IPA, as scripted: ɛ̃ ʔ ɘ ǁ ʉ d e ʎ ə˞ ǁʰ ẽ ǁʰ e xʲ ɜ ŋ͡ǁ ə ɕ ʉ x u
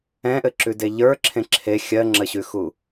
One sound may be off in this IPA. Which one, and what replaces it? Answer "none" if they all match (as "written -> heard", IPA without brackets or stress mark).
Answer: none